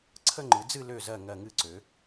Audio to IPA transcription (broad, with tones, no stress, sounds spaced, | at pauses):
ǀʰ ə˥˧ ŋ͡ǃ ɨ˩˧ d͡z ɨ˥˧ l ø˧˩ z ɜ˧˩ ŋ ɜ˧˩ ŋ ɨ˧ ǀ ø˩˧